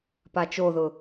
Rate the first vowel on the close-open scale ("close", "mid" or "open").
open